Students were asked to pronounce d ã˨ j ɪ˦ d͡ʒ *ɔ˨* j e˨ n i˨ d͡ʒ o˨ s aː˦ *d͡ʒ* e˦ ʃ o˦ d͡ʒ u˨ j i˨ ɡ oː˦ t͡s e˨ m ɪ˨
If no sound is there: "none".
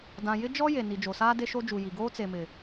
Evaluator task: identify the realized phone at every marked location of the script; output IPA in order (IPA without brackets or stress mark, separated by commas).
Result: ɔ˦, d